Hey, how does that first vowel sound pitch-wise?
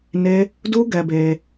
high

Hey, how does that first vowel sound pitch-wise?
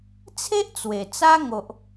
high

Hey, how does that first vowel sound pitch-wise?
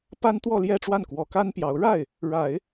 high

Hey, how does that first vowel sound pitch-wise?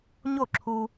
falling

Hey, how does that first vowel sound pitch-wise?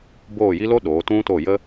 falling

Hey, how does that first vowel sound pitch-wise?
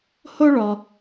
high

